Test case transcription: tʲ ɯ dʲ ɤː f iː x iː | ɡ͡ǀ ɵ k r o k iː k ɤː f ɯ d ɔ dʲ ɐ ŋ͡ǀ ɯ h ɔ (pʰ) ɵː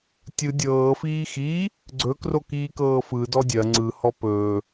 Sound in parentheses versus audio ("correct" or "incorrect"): incorrect